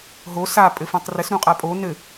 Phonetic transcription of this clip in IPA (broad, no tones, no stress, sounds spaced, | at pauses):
ɦ o s a pʼ ɘ f õ tˤ r ɘ s ɾ ũ qʼ a pʼ o n ɘ